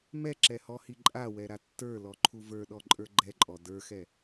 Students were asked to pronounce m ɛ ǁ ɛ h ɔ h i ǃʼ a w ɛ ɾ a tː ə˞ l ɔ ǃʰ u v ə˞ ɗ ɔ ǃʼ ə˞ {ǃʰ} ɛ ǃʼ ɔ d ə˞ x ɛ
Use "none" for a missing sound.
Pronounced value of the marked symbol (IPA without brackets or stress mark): ɡ͡ǃ